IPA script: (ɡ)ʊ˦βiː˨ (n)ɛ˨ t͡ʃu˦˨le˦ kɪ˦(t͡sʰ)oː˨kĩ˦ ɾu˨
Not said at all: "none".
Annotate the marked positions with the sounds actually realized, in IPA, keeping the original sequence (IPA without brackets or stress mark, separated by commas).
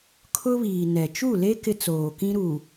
kʰ, n, t͡s